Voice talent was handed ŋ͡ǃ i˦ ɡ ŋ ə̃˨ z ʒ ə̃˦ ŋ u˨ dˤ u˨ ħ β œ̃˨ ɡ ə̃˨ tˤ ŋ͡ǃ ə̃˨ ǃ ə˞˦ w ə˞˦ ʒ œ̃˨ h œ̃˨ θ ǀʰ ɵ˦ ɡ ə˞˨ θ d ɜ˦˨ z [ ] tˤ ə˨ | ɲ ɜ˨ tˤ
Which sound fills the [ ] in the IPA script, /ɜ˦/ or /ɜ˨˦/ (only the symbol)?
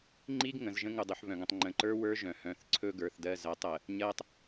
ɜ˨˦